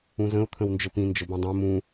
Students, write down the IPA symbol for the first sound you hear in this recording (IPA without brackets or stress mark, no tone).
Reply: ũ